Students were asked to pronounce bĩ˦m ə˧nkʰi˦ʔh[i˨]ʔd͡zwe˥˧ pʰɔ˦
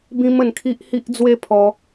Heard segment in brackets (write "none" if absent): i˦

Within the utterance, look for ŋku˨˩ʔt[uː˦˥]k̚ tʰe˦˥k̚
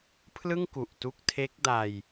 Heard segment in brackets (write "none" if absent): u˦˥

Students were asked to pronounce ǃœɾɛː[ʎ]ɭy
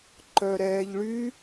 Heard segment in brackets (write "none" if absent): ʎ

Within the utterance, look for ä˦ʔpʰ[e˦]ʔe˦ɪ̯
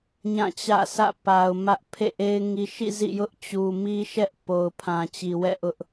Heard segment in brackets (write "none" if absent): ḛ˦˨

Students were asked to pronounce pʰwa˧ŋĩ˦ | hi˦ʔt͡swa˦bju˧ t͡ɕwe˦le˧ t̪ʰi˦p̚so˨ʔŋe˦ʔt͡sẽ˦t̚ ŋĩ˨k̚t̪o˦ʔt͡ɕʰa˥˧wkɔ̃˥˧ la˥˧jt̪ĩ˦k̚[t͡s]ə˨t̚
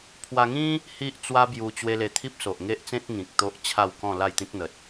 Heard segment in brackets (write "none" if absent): n̪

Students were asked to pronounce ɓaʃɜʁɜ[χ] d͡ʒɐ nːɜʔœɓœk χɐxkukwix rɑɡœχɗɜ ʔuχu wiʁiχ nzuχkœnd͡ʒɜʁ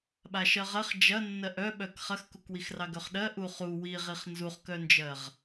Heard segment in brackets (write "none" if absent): χ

